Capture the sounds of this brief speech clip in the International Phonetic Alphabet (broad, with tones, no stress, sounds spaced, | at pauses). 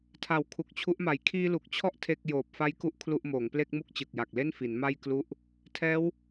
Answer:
tʰ a˨˩ w kʰ u˨˩ k̚ t͡ɕʰ u˦˥ ʔ m a˨˩ j kʰ iː˧ l u˨˩ k̚ t͡ɕʰ ɔ˥˩ ʔ tʰ e˥˩ k̚ j oː˨˩ p̚ f a˦˥ j k u˦˥ ʔ kʰ l u˥˩ ʔ m oː˩˦ ŋ p l e˥˩ k̚ m u˥˩ k̚ t͡ɕ ɯ˨˩ k̚ j a˨˩ k̚ l e˥˩ n f i˩˦ n m a˥˩ j k l u˥˩ ʔ | tʰ ɛː˦˥ w